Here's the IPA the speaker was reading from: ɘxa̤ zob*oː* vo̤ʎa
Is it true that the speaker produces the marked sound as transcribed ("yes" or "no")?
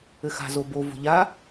no